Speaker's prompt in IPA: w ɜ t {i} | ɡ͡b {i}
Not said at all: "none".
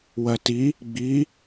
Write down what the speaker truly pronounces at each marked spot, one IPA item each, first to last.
i, i

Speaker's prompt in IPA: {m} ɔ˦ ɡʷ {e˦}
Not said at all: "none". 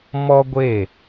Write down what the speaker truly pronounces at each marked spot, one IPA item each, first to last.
m, e˦˨

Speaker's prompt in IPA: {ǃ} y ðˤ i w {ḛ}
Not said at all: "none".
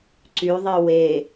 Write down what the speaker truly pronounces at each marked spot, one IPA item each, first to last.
ǀ, e

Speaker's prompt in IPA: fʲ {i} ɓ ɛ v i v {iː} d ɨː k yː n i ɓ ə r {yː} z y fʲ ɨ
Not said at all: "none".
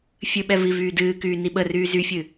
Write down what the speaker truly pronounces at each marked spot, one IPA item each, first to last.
ɨ, yː, yː

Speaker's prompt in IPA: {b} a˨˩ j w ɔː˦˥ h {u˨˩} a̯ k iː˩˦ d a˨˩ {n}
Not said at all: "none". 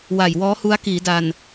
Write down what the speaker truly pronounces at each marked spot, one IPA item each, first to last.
w, u˦˥, n

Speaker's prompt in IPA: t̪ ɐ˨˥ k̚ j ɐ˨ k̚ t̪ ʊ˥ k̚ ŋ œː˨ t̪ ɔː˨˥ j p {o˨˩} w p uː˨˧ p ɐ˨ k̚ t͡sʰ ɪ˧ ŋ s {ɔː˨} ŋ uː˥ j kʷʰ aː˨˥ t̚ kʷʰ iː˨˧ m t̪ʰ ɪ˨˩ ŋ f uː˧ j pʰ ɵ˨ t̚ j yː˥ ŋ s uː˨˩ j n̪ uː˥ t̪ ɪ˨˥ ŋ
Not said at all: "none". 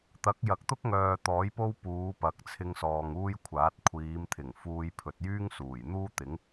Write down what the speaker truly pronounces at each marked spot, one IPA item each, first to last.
o˥, ɔː˨

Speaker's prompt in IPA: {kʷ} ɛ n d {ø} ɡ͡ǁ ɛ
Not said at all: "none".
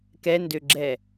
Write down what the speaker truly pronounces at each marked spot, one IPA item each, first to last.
k, ø

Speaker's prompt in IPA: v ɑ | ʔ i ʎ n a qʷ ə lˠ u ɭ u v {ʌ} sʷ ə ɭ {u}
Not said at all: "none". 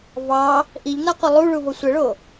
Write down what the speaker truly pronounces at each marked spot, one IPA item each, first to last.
ʌ, o

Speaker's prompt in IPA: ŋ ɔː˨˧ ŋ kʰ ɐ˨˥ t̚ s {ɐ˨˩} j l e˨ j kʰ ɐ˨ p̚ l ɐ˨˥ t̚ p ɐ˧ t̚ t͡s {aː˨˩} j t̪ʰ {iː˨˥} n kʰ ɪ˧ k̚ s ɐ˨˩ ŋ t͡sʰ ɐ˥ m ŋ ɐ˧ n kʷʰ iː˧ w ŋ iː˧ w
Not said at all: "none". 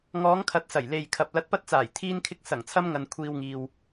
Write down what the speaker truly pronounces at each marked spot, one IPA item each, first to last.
ɐ˨˩, aː˨˩, iː˧

